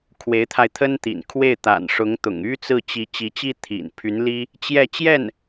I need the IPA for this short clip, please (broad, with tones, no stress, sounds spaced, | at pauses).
kʰ w e˧˥ ɪ̯ t̪ʰ a˧ ɪ̯ t̪ʰ ə˥ n t̪ ḭ˨˩ n kʰ w e˥˩ ɪ̯ t̪ a̰˨˩ n ʂ ʊ˧˥ ŋ t̪ ʊ̰˨˩ ŋ y˥ t͡s ɹ̩˥˩ t͡ɕ i˧˥ t͡ɕ i˧˥ t͡ɕ i˥ t̪ʰ ḭ˨˩ n pʰ y˧˥ n l i˥ | t͡ɕ j ɛ˥˧ t͡ɕ j ɛ˥˩ n